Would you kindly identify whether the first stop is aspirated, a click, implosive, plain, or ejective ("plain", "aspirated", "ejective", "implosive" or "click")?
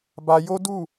plain